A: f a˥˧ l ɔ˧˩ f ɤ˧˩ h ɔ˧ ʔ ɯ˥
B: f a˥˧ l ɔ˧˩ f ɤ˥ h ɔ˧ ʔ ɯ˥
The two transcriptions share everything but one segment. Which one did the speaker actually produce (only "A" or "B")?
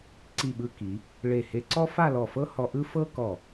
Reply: B